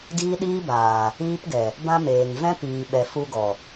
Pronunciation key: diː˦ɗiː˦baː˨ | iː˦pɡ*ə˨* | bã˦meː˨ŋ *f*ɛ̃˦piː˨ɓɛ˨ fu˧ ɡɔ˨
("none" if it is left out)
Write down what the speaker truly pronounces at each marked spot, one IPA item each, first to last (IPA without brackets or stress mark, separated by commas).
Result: ɛ˨, v